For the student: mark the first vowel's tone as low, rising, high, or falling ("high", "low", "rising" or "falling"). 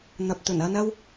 low